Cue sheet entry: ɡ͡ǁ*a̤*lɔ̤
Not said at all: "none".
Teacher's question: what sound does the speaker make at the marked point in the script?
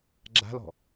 a̤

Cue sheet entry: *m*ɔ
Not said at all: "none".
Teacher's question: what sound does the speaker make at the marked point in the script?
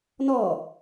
n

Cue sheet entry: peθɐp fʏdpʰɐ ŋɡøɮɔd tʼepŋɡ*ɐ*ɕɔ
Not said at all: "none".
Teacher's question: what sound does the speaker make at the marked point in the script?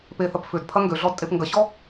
ɐ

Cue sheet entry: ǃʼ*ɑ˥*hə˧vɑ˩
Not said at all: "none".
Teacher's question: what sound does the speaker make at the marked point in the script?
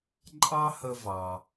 ɑ˥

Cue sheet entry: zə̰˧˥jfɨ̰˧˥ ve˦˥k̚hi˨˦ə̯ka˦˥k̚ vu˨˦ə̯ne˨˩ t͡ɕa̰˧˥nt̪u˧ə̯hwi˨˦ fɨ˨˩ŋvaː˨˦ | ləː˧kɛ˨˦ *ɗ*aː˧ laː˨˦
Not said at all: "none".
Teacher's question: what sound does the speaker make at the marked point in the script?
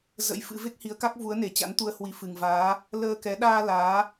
ɗ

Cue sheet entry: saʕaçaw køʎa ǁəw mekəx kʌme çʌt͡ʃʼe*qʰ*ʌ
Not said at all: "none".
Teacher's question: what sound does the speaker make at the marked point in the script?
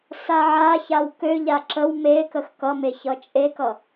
k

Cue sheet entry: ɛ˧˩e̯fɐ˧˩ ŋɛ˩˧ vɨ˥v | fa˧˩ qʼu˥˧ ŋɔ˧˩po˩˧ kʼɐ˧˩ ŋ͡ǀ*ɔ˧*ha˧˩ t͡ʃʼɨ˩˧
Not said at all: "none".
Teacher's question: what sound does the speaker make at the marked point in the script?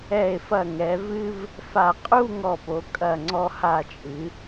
ɔ˧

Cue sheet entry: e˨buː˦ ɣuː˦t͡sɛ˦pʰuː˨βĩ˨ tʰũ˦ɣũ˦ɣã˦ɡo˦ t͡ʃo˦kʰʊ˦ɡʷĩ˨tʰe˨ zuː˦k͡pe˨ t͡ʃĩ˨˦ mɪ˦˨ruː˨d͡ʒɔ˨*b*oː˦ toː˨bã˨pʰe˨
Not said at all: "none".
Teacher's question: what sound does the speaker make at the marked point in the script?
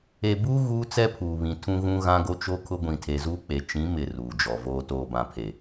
v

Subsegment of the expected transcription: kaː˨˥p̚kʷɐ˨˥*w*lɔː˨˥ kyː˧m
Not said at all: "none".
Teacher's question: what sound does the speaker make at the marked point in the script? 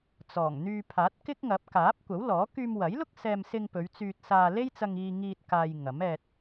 w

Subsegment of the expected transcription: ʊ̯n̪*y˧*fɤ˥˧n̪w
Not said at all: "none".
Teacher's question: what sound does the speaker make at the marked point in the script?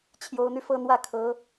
y˧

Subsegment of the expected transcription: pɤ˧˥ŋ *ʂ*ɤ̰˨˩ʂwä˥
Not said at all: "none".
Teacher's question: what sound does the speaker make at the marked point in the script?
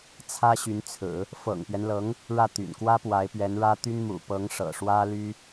ʂ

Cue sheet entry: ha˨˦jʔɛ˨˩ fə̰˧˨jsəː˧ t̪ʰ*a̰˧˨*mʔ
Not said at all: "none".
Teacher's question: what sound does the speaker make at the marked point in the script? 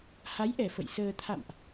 a̰˧˨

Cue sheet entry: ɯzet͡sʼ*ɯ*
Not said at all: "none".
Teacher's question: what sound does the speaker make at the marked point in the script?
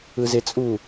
u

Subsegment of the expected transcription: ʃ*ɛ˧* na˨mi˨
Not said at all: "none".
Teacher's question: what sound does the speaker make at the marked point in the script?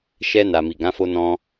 ɛ˧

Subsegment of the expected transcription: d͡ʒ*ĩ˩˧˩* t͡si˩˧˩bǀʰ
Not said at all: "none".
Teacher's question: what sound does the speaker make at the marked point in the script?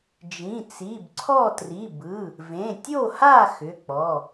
ĩ˩˧˩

